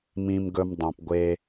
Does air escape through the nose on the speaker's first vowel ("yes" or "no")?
yes